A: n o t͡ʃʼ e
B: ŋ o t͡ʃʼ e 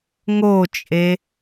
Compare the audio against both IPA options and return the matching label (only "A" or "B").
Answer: B